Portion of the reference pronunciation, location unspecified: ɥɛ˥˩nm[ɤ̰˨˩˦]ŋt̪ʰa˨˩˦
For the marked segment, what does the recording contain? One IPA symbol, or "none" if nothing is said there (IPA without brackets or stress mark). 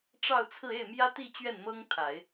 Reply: ɤ˥